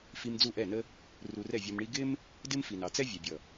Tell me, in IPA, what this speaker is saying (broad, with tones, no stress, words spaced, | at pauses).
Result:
fi˧m d͡zu˦˨ʔɛ˦˨nə˦ | ru˧rɛ˦˨vʲɔ˧mɳi˦ ɡɪ˦m | dɪ˦mfi˨nɑ˨t͡sɛ˦ vʲɛ˨bʲʌ˨